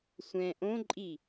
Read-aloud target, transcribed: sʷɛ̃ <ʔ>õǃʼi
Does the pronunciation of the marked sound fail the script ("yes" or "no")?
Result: no